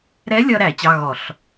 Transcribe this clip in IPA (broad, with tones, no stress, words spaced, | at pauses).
ɾɛ˧˥lʲʌ˧ɾæ˧˩˧ t͡ɕɑ˧˥˧ɣɔ˧˩˧ɬ